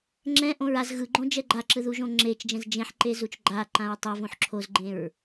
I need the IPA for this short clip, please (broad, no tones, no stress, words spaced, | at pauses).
ŋ͡ǁɛ̃ʔõɹ az ɣɯɡ͡ǃõ d͡ʒɛɡ͡ǃaǁɯ ðuʒõŋ͡ǁet͡ʃd͡ʒɛ̃z d͡ʒẽħǃe zut͡ʃɡ͡ǃaǃãɹ tˤʌvõħ ǁʰozɡ͡ǃẽɹ